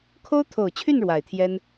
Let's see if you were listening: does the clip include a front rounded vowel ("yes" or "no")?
yes